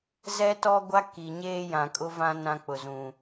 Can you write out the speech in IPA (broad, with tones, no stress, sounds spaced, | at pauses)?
z ɛ˦ t ɔ˦ ɡʷ a˦ k i˨ ɲ eː˦ j ã˨ kʼ ʊ˦ v ã˦ n ã˦ k͡p ʊ˨ z ũ˨